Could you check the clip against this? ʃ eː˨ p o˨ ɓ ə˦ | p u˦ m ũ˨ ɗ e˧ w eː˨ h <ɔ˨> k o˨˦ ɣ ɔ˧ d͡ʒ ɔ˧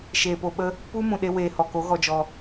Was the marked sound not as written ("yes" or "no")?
no